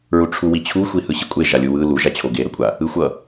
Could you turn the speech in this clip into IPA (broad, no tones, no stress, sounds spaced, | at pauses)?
ɹ u ʈ͡ʂʰ u w i t͡ɕʰ u xʷ i h ɯ ɕ i kʷʼ e ʒ a lʲ u w ɯ l u ʒ a t͡ɕʰ o ɡ e ɾ ʌ kʷʼ a | ɯ xʷ ʌ